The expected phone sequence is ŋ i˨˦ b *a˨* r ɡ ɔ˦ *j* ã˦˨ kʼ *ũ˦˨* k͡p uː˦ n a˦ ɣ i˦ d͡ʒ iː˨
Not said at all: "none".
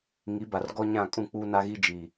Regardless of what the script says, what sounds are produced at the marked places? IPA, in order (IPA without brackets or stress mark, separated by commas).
a˨, ɲ, ũ˦˨